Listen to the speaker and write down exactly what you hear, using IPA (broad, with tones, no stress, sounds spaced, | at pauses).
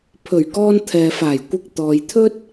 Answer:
pʰ ɵ˨˩ ɥ k ɔː˧ n t̪ʰ ɛː˨ f aː˨˩ j kʷ ɪ˨ k̚ t̪ ɔː˨ j t̪ʰ ɵ˥ t̚